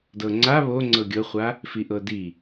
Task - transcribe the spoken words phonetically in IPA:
d ɤ ŋ͡ǀ a β o ŋ͡ǀ ɤ ɡʲ ɤ χʷ a | f i ʔ ɤ d i

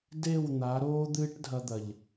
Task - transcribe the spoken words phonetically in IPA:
d e˦˨ w n̪ a˨˦ ɾ oː˦ d̪ ɨː˦ ʈ dʱ ɐ˧ d̪ ɐ˨ ʎ

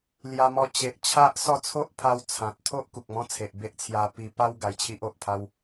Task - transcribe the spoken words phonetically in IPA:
l j a˧ m ɔ˧ t͡ɕ e˨ ʔ t͡ɕʰ a˦ ʔ s ɔ˥˧ t͡sʰ o˦ ʔ pʰ a˧ w t͡sʰ ã˨ t̚ t̪ʰ o˦ ʔ k u˨ k̚ m ɔ̃˦ t͡sʰ e˨ ʔ b e˦ ʔ t͡sʰ j a˧ p i˧ p a˦ w ɡ a˧ j t͡ɕʰ i˦ ʔ o˨ ʔ pʰ a˦ w

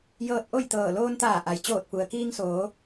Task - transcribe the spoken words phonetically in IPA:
j ɤː˧ t̚ ʔ o˥˨ j t̪ ɤː˧˩ l oː˧ n t̪ aː˧˩ ʔ a˩ j t͡ɕ oː˧˩ t̚ p u˩ ə̯ k iː˧ ŋ s oː˩˧

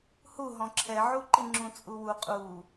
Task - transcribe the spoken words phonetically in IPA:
h u ɦ ɔ̃ ǁʰ ɛ ʕ u ǃ i ŋ͡ǁ ũ t͡sʼ u w u qʼ u

